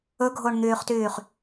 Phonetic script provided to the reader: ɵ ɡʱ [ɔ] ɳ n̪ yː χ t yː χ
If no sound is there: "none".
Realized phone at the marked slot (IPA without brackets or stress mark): o